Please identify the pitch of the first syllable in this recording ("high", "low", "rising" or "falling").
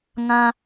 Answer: high